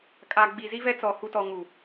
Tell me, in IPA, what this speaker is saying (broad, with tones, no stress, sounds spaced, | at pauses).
kʼ aː˨ ɡ͡b i˨ z i˦ v ɛ˦ t͡s ɔ˨ h u˨ t ɔ˨ ŋ u˨